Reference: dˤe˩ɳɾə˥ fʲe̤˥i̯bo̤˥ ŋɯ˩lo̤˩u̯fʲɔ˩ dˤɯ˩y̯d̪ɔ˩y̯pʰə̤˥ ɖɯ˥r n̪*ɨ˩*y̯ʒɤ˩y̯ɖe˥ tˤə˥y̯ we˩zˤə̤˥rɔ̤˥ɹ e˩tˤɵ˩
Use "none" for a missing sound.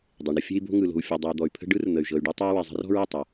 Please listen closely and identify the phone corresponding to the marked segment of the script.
ə˩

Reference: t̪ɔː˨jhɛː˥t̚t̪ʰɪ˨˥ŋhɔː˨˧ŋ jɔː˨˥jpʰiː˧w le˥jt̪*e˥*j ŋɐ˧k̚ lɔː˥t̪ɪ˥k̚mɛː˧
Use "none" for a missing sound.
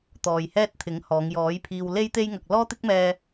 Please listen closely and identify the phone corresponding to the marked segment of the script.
e˥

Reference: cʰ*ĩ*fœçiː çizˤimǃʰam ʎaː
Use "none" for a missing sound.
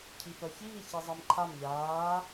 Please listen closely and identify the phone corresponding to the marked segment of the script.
i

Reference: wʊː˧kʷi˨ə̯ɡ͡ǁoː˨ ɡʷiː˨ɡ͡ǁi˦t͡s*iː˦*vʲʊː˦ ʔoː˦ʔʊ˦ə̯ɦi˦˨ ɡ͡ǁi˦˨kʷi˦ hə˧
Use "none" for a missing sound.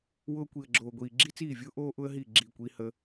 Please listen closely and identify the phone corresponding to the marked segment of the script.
iː˦˨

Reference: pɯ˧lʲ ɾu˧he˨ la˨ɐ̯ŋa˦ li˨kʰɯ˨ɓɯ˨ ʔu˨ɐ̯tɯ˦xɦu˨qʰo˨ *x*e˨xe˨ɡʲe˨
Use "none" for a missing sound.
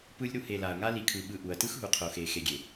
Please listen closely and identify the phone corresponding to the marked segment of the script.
x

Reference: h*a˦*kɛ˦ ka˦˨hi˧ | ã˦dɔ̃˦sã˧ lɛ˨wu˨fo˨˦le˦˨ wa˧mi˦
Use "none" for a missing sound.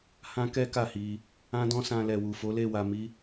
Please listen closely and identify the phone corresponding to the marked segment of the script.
ã˦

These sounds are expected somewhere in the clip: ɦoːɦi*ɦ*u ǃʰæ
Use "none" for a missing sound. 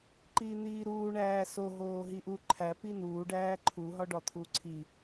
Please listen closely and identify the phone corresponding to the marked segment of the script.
ʔ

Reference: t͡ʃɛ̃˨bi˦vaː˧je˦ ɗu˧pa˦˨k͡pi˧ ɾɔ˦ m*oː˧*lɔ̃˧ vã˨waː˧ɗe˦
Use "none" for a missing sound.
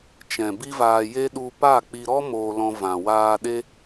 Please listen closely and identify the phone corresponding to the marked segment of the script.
oː˧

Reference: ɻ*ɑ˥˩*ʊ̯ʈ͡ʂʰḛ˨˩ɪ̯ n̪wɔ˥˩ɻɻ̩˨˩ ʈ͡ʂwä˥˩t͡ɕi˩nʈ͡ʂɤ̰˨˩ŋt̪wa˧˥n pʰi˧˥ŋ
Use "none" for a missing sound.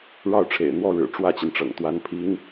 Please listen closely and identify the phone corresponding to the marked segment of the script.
ɑ˥˩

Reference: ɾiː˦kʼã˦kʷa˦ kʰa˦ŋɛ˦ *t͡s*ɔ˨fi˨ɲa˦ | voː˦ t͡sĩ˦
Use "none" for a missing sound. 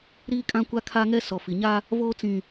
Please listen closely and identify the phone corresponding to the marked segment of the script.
s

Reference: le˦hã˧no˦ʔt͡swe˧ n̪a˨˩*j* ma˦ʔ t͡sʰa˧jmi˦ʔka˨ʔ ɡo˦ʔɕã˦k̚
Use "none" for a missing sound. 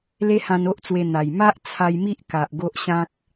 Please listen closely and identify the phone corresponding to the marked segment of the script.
j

